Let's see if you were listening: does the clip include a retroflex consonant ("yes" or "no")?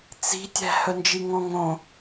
no